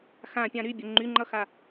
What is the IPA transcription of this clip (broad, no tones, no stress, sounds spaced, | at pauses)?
x ã pʲ ã ɾ y bʲ ə ŋ͡ǃ y ŋ͡ǃ ʌ x a